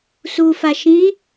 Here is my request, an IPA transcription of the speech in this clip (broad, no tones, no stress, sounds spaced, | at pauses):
s u f a ʃ ĩ